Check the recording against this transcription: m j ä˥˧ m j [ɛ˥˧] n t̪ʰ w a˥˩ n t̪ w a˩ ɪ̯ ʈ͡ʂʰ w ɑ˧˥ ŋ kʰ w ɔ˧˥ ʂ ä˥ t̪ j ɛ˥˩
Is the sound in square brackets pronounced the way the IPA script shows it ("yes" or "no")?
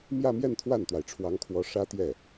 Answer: yes